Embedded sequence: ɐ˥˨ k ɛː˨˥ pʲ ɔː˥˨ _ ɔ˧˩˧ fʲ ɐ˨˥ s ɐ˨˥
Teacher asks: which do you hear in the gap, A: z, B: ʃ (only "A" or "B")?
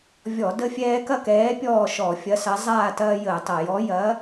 B